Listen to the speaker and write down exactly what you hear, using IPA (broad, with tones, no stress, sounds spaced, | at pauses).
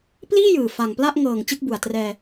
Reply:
p l iː˥˩ j ɯː˨˩ f a˨˩ ŋ p l a˥˩ ʔ ŋ ɤː˨˩ ŋ t͡ɕ ɯ˥˩ k̚ b u˨˩ a̯ t r ɛː˧